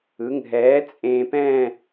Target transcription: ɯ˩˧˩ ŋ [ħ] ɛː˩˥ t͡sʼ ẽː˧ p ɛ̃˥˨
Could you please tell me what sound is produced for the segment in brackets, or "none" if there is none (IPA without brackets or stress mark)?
ɦ